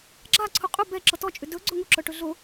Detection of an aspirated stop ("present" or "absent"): present